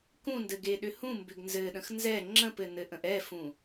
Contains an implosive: yes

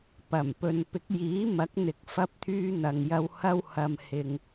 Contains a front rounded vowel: yes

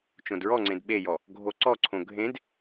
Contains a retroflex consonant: no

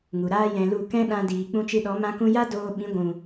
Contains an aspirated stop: no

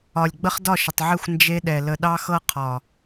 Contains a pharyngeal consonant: yes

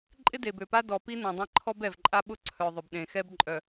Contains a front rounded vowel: yes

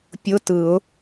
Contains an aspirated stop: no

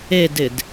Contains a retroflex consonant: no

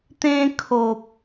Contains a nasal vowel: yes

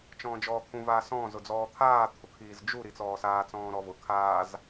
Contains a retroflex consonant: no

